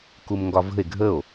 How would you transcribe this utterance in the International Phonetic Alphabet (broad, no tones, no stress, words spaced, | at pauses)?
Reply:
kumŋɡɒvə̤e̯ ɡʱəo̯